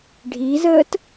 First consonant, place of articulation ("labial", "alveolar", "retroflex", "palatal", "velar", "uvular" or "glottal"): retroflex